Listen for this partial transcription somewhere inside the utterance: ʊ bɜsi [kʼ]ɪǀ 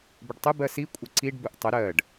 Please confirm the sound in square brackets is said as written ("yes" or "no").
no